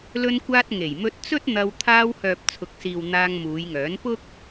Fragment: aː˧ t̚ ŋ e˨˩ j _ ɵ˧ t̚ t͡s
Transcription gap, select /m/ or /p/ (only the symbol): m